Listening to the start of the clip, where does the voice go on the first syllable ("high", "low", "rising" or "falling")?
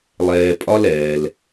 low